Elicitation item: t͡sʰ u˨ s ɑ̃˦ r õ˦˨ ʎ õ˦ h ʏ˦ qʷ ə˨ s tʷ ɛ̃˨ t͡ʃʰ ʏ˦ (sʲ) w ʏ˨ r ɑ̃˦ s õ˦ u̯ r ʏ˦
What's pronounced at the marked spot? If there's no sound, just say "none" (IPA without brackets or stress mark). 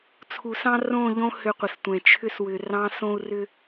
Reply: s